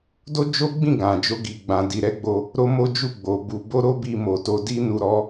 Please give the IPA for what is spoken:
d o˦ d͡ʒ o˦ ɡ͡b ĩ˦˨ ɡ ã˨ d͡ʒ o˧ ɡ i˨ ɡ͡b ã˨ d i˨ ɾ ɛ˨˦ ɡ͡b o˧ | ɾ o˦ m o˦ d͡ʒ u˦˨ ɡ͡b o˨ b u˧ b o˦ ɾ o˦ b i˧ m o˨ t o˧ d i˦ n u˧ ɾ ɔ˧

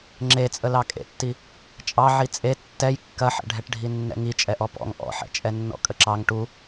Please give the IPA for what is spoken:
ŋ͡ǁ e t͡sʼ ə l ɑ kʼ ḛ tː i | t͡ʃʼ ɑ ʕ i t͡sʼ e tː ɛ j kː ɐ ħ ɛ̰ ɖʱ ɛ ʈ ɖʱ i nː ɛ̰ ŋ i t͡ʃʼ ɛ ʔ ɔ p ɔ̰ ŋ ʔ ɔ̰ ħ ɛ̰ t͡ʃʼ ɛ nː ɔ̰ kʼ ə ǁ ɑ ŋ ʈ u

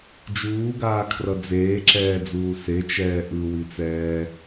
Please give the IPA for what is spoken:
d͡ʒ uː ɡ aː kʰ r ʌ d͡z eː ǁ ɛː d͡z uː s e t͡ʃ ɛː ʔ ɯ w i t͡s ɛː

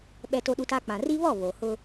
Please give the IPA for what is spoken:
ɓ ɛ˦ t o˦ ɗ u˦ t a˦ k͡p ã˨ r i˦ β ɔ˦˨ β o˨ h ʊ˦

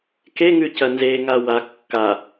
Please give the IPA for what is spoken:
k e ŋ ʉ c ɐ n z e ŋ a w a kː a

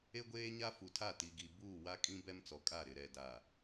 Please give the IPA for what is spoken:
e˦ ɡʷ eː˦ ɲ a˦ f u˨ tʰ a˦˨ t i˨ ɡ i˨ b uː˦˨ w a˦ kʼ ĩ˦ b ɛ˦ m t͡s ɔ˨ kʼ a˦˨ ɾ ɪ˨ ɾ ɛ˨ d a˨

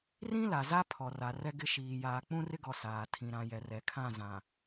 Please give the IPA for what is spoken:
r ĩ˦ l a˨ z a˦ pʰ ɔ˨ r a˨ r ɛ˦ ɡ ɪ˦ ʃ iː˨ j aː˨ k͡p ũ˦ r ɪ˦ ɡ ɔ˨ s aː˨ tʰ ĩ˨ ɾ ã˨ j ɛ˨ r ɛ˨ kʰ ã˦˨ z ã˨

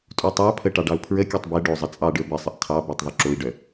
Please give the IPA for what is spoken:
tʼ u tˤ ɑ pʰ ə ʈ ɑ ɖ ɑ u̯ pʰ ɹ ə kʲ œ tˤ b ɛ ɖ o zˤ ə t͡sʼ ɑ ɖ ə˞ b ɘ sˤ ə ʔ tʰ ɑ b ə˞ tˤ ðˤ u ǁ o i̯ ɖ œ

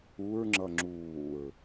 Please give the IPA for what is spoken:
u ɹ ŋ͡ǁ ʌ ŋ͡ǁ uː ɹ

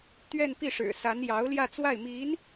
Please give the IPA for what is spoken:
t̪ ɥ ɛ˥˧ n p i˥˩ ʂ ɻ̩˨˩ s a˧˥ n j ɑ˧˥ ʊ̯ l j ä˥˧ t͡s w a˥˩ ɪ̯ m i˧˥ n

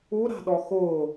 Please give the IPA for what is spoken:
u ɾ a̤ ɗ ɔ x ʊː

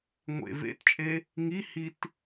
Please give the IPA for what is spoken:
ŋʷ ḛ v ḛ t t͡ʃʼ e | ŋ i h i t

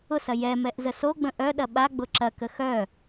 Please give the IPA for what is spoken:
ʊ s ɐ j ɛ m ɛ ʔ z ə s o ɡ͡b ə̃ ʔ œ ɗ ɐ ɓ a ɡ͡b ʊ ǁ ɐ k ə x œ

